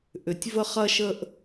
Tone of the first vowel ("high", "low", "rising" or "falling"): low